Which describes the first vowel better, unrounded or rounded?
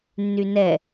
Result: rounded